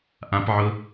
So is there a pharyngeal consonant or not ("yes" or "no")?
yes